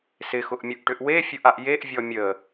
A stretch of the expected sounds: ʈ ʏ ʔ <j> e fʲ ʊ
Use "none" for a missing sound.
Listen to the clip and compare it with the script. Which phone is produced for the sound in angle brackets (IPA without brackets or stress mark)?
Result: w